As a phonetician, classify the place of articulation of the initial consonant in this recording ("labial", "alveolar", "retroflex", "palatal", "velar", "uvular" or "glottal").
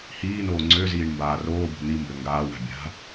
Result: glottal